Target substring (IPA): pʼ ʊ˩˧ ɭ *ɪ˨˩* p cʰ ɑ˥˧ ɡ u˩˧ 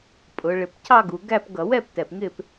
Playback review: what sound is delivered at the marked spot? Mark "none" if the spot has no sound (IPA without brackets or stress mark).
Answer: ɪ˨˩